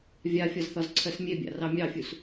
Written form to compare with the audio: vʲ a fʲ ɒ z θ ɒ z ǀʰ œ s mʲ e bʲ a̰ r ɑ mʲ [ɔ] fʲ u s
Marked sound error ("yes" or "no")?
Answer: yes